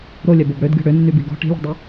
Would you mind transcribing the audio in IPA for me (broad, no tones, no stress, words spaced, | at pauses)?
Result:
ɾolʲœbob ɽødɡʲɔ̤ ɽønːybi ɡɔ̤ ʈi̤lʲɔ̤dˤi